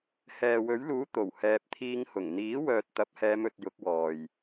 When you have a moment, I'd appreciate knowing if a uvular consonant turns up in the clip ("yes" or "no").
no